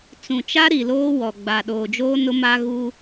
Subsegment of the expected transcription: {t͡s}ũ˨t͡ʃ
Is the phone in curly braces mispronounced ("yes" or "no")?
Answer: no